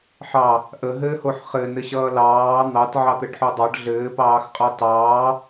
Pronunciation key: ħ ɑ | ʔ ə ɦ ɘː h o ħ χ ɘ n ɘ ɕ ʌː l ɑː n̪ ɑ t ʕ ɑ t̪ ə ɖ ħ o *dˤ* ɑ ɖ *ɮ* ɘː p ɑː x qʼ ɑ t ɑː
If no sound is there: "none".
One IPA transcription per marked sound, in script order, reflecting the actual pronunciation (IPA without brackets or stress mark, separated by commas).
dˤ, ɮ